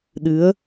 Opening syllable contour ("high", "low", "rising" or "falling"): rising